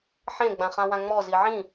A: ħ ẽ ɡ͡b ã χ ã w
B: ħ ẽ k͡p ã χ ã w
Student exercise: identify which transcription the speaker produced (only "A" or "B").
A